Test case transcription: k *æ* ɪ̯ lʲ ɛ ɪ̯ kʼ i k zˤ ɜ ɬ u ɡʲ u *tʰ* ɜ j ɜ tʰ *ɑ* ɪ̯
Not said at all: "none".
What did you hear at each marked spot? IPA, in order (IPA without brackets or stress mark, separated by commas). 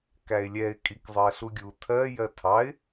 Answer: æ, tʰ, ɑ